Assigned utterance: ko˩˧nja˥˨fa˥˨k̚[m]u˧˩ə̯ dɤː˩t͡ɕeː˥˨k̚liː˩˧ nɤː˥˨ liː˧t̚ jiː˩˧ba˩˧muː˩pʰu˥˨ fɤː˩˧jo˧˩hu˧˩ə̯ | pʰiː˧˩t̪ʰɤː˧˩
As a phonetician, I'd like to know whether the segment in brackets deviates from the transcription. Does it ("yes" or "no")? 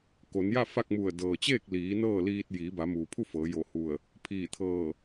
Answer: no